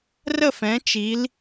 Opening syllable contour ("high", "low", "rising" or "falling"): falling